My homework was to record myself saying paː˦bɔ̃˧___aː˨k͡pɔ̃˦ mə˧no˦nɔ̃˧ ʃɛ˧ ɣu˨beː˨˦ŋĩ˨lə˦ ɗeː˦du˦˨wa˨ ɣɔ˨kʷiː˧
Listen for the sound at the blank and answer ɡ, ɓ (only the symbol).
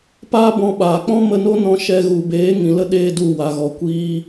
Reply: ɓ